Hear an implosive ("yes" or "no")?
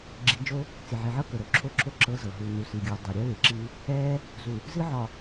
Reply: no